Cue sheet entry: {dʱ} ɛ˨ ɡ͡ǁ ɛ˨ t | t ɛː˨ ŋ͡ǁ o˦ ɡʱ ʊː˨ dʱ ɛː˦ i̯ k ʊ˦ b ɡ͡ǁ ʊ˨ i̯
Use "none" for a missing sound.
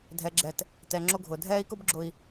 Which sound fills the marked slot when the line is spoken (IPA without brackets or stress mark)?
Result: dʱ